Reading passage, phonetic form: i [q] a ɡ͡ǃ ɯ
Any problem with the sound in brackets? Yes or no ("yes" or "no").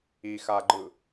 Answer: yes